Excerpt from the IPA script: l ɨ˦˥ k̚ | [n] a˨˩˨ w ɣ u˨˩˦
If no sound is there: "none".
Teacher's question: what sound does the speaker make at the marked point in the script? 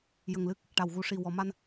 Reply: ʈ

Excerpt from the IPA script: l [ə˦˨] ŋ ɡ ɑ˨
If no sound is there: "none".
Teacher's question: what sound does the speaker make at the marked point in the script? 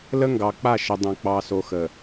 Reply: ə˦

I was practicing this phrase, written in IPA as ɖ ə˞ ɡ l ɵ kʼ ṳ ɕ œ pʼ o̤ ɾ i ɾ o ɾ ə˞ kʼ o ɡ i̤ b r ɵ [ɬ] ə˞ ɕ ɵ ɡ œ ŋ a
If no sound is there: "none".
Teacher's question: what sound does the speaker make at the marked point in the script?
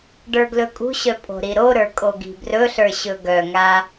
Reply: ɬ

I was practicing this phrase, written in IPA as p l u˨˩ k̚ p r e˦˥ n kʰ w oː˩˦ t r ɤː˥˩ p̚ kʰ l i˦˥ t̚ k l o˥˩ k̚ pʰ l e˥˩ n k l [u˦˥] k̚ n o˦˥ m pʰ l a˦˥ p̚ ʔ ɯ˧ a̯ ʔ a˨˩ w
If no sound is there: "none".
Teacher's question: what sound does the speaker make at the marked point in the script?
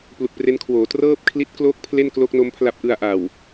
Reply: o˦˥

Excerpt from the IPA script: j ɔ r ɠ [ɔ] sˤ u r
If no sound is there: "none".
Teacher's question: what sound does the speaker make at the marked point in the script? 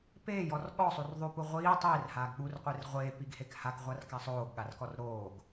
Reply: ɔ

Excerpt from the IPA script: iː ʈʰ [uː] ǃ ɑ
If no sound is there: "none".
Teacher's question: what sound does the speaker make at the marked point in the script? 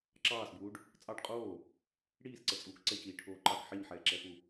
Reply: oː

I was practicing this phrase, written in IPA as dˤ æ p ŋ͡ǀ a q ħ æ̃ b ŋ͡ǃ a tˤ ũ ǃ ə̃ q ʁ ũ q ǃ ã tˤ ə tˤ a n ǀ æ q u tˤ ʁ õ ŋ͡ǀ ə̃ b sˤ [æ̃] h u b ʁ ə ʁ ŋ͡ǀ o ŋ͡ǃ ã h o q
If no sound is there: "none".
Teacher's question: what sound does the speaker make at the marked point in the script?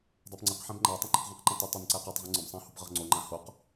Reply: æ̃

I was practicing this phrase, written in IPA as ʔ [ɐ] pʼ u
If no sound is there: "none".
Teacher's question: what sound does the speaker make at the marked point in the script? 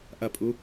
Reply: ɐ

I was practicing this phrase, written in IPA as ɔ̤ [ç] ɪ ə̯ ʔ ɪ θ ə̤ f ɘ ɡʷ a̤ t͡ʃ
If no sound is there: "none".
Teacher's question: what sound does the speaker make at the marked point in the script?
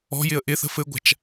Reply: j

